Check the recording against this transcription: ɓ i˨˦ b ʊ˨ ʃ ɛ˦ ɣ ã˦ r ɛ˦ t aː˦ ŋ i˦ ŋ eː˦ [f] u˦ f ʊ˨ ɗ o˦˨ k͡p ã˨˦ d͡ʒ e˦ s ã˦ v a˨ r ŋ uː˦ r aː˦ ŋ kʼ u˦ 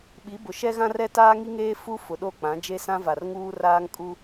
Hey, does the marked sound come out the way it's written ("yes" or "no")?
yes